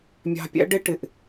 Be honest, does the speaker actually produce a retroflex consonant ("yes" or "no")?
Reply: yes